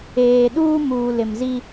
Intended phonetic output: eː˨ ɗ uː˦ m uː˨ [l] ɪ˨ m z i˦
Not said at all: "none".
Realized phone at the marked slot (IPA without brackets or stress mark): l